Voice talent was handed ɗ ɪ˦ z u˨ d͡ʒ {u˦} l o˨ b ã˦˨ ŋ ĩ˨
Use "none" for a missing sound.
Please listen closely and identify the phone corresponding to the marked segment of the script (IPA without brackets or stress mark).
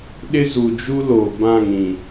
u˦